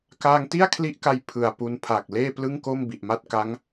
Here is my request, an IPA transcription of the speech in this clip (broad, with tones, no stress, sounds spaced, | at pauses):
k aː˧ ŋ t i˥˩ a̯ kʰ l i˦˥ ʔ k a˧ j pʰ ɯ˨˩ a̯ p u˧ n pʰ aː˨˩ k̚ l eː˥˩ p l ɯ˥˩ ŋ k o˥˩ m b i˨˩ ʔ m a˥˩ t̚ k a˦˥ ŋ